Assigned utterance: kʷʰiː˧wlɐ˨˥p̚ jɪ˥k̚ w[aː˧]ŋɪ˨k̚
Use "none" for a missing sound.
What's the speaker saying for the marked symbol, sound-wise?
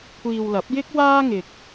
aː˥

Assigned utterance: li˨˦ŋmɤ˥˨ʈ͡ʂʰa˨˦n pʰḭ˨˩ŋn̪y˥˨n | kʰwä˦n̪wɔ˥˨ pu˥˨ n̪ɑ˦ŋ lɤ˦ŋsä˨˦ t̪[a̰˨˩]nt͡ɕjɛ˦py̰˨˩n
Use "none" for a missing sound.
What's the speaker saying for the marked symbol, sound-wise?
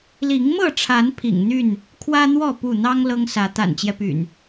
a̰˨˩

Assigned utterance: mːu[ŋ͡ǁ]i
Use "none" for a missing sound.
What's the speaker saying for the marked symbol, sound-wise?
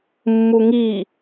ŋ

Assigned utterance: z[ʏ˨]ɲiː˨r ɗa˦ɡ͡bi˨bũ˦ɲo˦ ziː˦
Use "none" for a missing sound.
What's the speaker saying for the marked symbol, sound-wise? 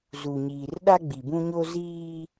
u˨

